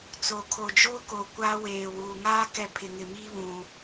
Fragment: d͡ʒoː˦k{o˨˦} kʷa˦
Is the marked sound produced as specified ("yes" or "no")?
no